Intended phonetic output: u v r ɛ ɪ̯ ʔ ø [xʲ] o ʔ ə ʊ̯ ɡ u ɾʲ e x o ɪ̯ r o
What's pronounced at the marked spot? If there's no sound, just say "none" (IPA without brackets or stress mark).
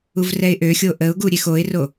xʲ